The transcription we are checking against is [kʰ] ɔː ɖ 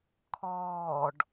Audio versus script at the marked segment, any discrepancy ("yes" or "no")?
no